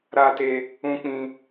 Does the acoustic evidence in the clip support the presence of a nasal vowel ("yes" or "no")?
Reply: yes